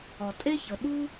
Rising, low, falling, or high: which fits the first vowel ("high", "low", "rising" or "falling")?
low